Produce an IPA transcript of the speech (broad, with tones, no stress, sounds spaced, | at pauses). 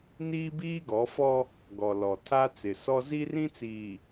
n iː˦ b iː˦ ɡ ɔ˨˦ f ɔ˦ | ɡ ɔ˨ l ɔ˨ tʰ a˦ t͡s ɪ˨ s ɔ˦ z i˦ r ĩ˦ t͡s iː˨